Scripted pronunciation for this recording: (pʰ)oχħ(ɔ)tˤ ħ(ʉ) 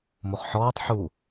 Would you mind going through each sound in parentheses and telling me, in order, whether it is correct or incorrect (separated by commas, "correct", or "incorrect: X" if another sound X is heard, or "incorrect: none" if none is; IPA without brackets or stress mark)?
incorrect: m, incorrect: ɔː, incorrect: u